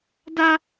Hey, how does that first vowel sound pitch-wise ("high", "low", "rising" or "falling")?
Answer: high